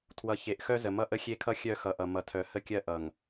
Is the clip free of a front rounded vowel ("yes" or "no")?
no